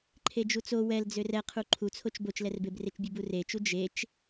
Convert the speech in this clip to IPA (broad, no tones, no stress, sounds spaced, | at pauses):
ǃʰ e d͡ʒ u t͡s o w ɛ l d͡z ø r ɛ qʰ u ǃʰ u t͡sʰ o t͡ʃ b o t͡ʃ l ɛ r b e b r e t͡ʃ bʲ u b u r e t͡ʃ u d͡ʒ e t͡ʃ